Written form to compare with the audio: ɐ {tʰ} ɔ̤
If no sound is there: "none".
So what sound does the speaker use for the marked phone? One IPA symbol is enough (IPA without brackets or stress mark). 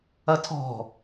tʰ